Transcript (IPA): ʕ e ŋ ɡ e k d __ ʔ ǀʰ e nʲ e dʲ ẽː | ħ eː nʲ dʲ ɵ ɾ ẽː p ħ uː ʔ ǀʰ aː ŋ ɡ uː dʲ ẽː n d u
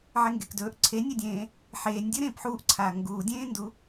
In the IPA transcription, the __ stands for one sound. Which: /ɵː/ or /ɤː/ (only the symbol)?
ɵː